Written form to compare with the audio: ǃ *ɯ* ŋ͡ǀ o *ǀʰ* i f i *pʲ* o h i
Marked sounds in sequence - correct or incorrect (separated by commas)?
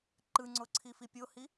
correct, correct, correct